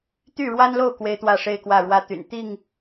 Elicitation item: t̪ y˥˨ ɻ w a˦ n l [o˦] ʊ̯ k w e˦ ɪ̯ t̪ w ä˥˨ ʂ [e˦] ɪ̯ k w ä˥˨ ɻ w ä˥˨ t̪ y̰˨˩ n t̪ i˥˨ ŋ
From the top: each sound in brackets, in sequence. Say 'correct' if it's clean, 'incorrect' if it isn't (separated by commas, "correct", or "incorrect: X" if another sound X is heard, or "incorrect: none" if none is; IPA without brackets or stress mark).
incorrect: o˥˨, correct